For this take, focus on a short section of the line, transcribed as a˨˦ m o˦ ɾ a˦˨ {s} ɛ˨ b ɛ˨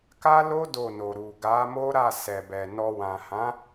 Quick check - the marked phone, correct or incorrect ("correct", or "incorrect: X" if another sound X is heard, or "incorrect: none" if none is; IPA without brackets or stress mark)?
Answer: correct